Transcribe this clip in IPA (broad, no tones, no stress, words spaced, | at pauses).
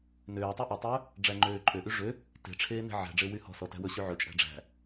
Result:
nøːtˤy ʔetˤøː | ɖ͡ʐæŋ͡ǃøːǃʼøʔy ʐø | te̤ʈ͡ʂʰeː ne̤ʕæ̤ɖ͡ʐe wyhɔ̤sɔ tæ̤wɵɕy ʕɵt͡ʃʼæ̤ ɖ͡ʐæ̤